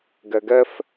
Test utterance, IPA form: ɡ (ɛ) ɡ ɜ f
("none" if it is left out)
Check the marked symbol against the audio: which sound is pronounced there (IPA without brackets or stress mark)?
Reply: ɜ